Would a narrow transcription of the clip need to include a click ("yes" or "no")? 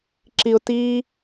yes